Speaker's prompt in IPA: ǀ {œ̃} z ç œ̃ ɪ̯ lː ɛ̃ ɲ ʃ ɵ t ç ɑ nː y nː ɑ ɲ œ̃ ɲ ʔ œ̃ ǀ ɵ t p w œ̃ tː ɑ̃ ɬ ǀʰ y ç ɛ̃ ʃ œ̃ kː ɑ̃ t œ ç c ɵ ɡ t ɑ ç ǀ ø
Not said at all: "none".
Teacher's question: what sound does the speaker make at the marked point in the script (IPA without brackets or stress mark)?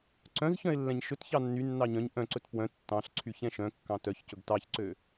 œ̃